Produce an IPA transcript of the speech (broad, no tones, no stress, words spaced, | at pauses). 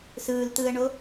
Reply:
sɯːlt̪ɯːə̯ɳo